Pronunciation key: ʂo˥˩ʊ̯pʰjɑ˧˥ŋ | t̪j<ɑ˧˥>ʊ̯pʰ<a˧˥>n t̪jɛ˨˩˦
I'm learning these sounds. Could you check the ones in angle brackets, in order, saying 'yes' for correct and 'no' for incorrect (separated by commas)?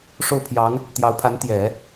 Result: yes, yes